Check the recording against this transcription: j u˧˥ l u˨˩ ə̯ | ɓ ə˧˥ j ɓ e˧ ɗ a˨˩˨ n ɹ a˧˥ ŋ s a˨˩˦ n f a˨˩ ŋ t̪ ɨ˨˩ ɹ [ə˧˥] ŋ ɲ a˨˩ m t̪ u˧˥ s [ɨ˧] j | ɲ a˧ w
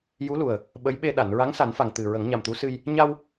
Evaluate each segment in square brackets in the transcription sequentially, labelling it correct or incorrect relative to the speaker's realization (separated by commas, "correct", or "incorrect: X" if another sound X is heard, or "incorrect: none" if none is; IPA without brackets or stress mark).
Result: incorrect: ə˨˩˦, correct